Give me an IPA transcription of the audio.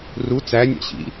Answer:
ru t͡sænʲæ̰ɕḭ

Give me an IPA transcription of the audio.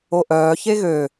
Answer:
oʔœː çeɣø

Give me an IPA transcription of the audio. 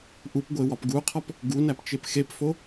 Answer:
ʔupɡʷewɒp ɡuqʰɒp | ɡunæpt͡ʃep xepfo

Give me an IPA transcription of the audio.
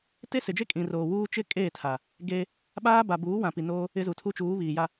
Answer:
te˦sɪ˨d͡ʒe˦ kʼĩ˨roː˨wuː˦ t͡ʃɪ˦ kʼeː˦˨tʰa˨ | ɡe˦ | ɓaː˦ ba˨buː˨˦wã˨ pi˨noː˦ | ɪ˦zu˨ tʰu˦t͡ʃuː˨˦ βiː˨ja˦

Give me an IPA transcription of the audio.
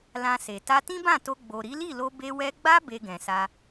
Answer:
lã˧se˨ ta˧tĩ˦bã˦˨to˧ ɡ͡bo˨ɾi˨˦li˦˨lo˧ be˧wɛ˧ɡ͡ba˦ be˧ɡɛ̃˨sa˧

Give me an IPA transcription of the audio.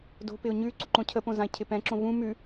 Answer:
do̤pɪʊ̯ ɲʉ ǀuǃõcʰəpõ zãɪ̯cʰɪpɛ̃ǁõ vũ mʉ

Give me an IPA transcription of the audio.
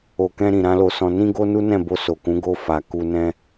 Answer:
o˨kɛ̃˧ɾĩ˨ ɾã˨˦lo˧sɔ̃˧ nĩ˦ɡo˦nu˦nɛ̃˦˨ bo˧so˨kũ˨˦ ɡo˧ fa˨ku˧nɛ̃˦

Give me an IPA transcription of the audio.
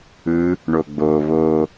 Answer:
ɯ | ɳoɡ͡bo βo

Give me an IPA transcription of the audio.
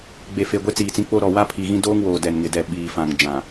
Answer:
ɡ͡be˨fe˨ɡʷe˦ t͡siː˨t͡sĩ˦k͡po˦ɾɔ˨ wa˦pʰi˨ɣĩ˦ doː˦ŋ woː˨dɛ˨nŋɪ˨ dɛ˨ ɓiː˨fã˨ŋ d͡ʒã˨

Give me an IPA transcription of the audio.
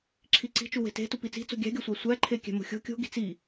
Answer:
ǁʰiǀi̤t͡ʃu we̤te̤tu pit͡si̤t͡so̤ ɡʲæ̤ɡʲɒ sʷæsʷæǃʰe kʲæ̤mo̤xʲo̤ kʲo̤ ɡi̤t͡si

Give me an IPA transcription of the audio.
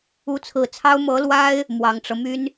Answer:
u˧˥t͡sʰɹ̩˨˩t͡sʰɑ˥ʊ̯ mɤ˧˥lwa˥ɪ̯ | mwɑ˨˩ŋʈ͡ʂɤ˦ my˥n

